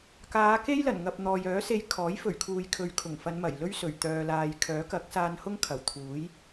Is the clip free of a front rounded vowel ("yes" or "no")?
no